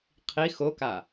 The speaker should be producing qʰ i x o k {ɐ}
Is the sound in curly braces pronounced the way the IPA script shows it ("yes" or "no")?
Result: no